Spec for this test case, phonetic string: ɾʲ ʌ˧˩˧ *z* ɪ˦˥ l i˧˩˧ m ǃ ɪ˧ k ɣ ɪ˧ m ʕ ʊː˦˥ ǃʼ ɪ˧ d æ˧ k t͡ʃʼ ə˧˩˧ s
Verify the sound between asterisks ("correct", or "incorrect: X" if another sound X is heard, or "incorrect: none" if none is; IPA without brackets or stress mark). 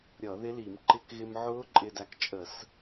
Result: incorrect: ð